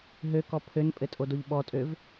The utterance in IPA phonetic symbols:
ɦ ø k ɔ pʰ ø n pʼ ɘ tʼ o d o ʎ ɓ ɔ tʼ ø v

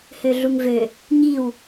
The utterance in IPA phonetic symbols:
h ø ɮ u ŋ v ø | ɲ i w

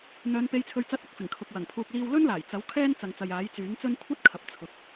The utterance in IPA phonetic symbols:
n̪ œː˨˧ n p e˨˧ j t͡sʰ ɵ˨ ɥ t͡s ɐ˨˥ t̚ ɐ˧ k̚ f ɪ˨˩ ŋ kʰ ʊ˨ k̚ w ɐ˨˩ ŋ pʰ uː˨ k̚ l iː˧ w l ɵ˥ n l aː˨˩ j t͡s ɐ˨˥ w kʰ ɛː˥ n t͡s ɐ˨ ŋ t͡s ɐ˨ j aː˨˥ j t͡s yː˨˥ ŋ t͡s ɵ˥ n kʷʰ ɐ˥ t̚ kʰ ɐ˨˥ p̚ t͡sʰ ʊ˨˥ k̚

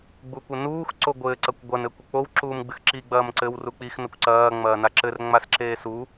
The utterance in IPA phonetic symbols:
ɡ͡b u kʷ ɘ n uː x ǀ o ɡʷ ɘ ǀ ɐ kʷ ɡʷ ɐ n ɘ kʷ ɘ k͡p o w ǁ uː m ɡ͡b ɨ x ǁ i ɡ͡b ɐː m ǀ ɘ w r u k͡p i x n ɐ kʷ ǀ ɐː ŋ͡m ɐː n a ǁ ɘ r ŋ͡m a s ǁ eː s u

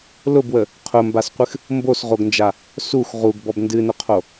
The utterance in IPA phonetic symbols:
l ʊ b w ə | qʰ ʊ m b a s qʷ ɨ x | m b o s ʁ o ɡ n d͡ʒ a | s u x ʁ u ɡ b ɔ b n d ɨ n ʊ qʰ o

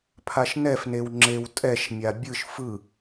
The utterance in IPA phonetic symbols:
pʰ a ʃ n ɛ f n e w ŋ͡ǁ e w tʼ ɛ ʃ mʲ a bʲ ɯ ʃ f ɯ

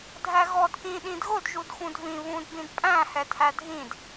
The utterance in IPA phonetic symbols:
dʱ æ ɣ ɔ d k ĩ ɗ ĩ d ɣ ʊ d ʒ u d x ũ d v ĩ β ũ d b ĩ d pʼ æ̃ h ɛ tʰ æ dʱ ĩ d

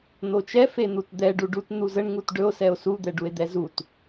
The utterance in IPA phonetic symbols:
n̪ o t͡ʃ ɛ f e n̪ u t d̪ ɛ ɖ u ɖ u t n̪ u z ə ɳ ŋ u t ɖ ɵ o̯ s ɛ o̯ s u d̪ ɛ ɖ u e̯ d̪ ɛ z u t

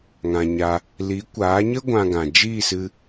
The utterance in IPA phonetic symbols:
ŋ ã˧ ɲ a˧ | l i˨˦ kʷ aː˨˦ ɲ ə˦ ɡʷ ã˧ ɡ ã˨ d͡ʒ iː˦˨ s ɨ˧

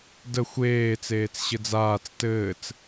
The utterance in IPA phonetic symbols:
d ə xʷ eː t͡s eː t͡s ɕ ɘ d͡z aː t͡s t ɘː t͡s

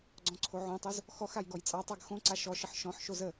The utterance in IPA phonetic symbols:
ɡ͡ǀ ɔ̃ ǀʰ o ʕ õ tˤ o z | x ɔ x a j ɡ ɔ j t͡sʼ ɑ tˤ ɑ ɡ x õ ǀ a ʃ ɔ ʃ ə ħ ʃ ɔ̃ ħ ʃ o z ə

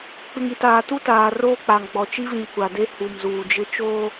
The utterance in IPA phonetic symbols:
k͡p ɪ˨ ŋ i˨ t aː˨ t u˦ t aː˨ r oː˦ k͡p a˨ ŋ ɡ͡b ɔ˨ t͡ʃ i˦ v ĩ˨ kʷ a˨ d e˦ h u˨ m z uː˨ d͡ʒ ɪ˦ t͡ʃ oː˦

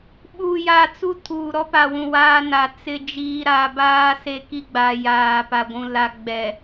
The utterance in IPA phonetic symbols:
ɓ u˨ j a˨ t͡s u˦ tʰ uː˨ ɾ ɔ˦ p a˨ w ũ˨ w aː˦ n a˨ t͡s ɪ˨ d͡ʒ iː˨ ɾ a˨ b aː˦ s e˦ k i˦ ɡ͡b a˨ j aː˨ p a˨ ɡʷ ũ˨ l a˨ ɡ͡b ɛ˨

